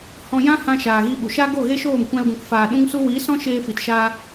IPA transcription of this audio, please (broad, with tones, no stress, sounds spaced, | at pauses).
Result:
h ɔ̃˧ j ã˦ h ã˧ ʃ aː˨ ɣ i˧ ɓ u˨ ʃ aː˦ ɡ o˦˨ ɣ e˦ ʃ oː˦˨ m kʷ ã˧ l ɡ ũ˨ k f aː˨ ɗ ũ˦ ŋ s u˦ w iː˨˦ s ɔ̃˦ ʃ eː˧ f i˨ t ʃ a˧